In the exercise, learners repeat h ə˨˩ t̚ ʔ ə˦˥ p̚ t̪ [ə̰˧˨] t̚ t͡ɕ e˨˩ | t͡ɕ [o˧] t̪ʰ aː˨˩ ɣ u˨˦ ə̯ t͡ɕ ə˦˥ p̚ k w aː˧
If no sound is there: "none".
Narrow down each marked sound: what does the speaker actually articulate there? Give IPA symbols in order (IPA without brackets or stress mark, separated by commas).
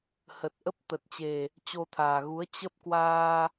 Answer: ə˨˩, o˧